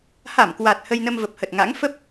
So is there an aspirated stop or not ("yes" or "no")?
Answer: no